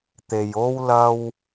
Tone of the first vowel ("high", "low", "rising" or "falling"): low